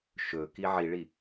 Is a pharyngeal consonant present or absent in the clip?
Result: present